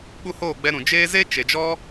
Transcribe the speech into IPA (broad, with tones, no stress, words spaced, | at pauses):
ɓu˦hoː˦˨ɡ͡bɛ˧ ɾũ˨d͡ʒeː˦ ze˦ t͡ʃe˨d͡ʒɔ˦